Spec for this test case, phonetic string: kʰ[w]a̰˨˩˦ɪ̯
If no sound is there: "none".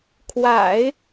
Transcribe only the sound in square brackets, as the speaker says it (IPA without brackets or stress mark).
w